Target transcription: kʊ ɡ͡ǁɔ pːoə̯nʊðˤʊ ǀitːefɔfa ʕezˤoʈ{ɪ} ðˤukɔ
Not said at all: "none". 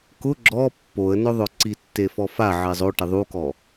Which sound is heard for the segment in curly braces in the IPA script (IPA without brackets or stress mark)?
ɪ